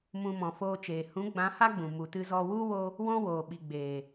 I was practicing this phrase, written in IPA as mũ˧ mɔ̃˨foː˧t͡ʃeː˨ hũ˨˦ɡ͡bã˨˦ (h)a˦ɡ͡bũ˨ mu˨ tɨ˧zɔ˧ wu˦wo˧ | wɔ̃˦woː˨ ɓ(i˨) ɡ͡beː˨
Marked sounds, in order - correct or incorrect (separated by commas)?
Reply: correct, correct